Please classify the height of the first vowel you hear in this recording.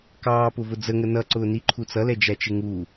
low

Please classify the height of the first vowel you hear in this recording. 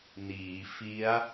high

